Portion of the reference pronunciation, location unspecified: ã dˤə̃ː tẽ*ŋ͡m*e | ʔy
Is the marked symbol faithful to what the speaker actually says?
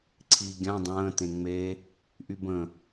yes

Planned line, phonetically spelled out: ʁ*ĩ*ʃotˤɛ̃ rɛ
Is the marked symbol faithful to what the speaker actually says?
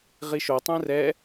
no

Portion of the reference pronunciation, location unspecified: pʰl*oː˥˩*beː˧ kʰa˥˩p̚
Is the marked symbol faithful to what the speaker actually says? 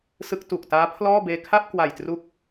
no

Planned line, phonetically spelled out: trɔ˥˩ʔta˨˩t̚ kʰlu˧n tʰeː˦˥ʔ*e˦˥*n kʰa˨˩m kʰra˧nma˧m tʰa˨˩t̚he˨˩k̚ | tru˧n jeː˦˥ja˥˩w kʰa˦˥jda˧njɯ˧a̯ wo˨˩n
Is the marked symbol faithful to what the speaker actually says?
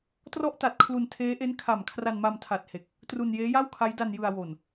yes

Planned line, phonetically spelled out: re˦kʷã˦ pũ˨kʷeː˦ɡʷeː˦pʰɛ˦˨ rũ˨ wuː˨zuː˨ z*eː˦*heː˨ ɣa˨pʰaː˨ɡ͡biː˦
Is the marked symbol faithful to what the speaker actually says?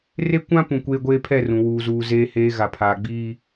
no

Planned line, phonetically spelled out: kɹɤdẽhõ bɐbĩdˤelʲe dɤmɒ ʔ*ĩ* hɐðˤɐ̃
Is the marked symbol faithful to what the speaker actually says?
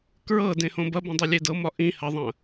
yes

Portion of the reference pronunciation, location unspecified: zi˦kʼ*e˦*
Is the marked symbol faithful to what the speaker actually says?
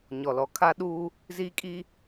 no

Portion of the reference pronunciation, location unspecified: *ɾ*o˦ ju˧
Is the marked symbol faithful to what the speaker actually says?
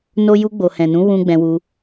no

